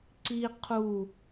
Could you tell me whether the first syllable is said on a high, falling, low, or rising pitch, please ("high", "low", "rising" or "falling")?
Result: high